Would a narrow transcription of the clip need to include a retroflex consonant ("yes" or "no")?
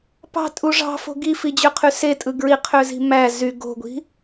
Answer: yes